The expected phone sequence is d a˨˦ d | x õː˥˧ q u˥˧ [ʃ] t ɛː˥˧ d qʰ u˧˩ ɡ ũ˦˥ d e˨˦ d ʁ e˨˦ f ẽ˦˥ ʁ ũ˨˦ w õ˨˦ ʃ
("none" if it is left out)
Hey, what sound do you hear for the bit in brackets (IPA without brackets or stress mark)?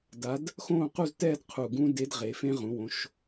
z